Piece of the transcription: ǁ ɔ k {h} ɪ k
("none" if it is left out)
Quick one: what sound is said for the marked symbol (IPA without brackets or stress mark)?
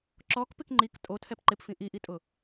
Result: p